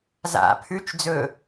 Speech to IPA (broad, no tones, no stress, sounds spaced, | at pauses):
z a̰ pʰ ʉ t͡ʃ d͡z ɵ